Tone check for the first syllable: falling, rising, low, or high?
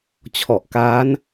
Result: low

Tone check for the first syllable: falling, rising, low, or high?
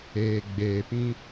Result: low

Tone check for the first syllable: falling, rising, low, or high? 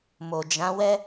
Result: low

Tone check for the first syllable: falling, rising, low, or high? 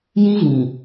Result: high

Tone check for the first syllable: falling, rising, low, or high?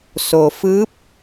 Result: low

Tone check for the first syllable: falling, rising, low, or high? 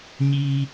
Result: high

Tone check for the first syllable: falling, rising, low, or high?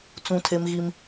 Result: high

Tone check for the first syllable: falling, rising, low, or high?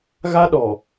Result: high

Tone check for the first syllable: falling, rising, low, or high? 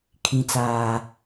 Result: low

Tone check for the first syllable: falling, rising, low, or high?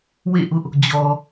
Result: falling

